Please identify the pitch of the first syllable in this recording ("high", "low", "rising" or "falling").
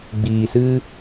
low